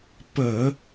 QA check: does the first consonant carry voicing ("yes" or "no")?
no